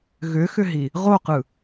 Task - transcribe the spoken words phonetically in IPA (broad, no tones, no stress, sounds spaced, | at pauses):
ɣ ʏ x ʏ ɦ i | ʁ o q ɯ